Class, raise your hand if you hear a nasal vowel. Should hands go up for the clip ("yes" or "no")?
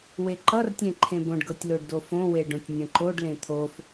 yes